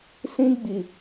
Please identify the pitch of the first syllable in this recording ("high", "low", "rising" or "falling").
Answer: high